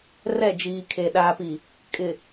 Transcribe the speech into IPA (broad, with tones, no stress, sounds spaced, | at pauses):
r ɛ˦˨ d͡ʒ iː˨ kʰ e˨ ɗ aː˨ p i˨ | kʼ ɪ˨